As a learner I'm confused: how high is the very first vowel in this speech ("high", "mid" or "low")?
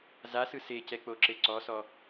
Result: low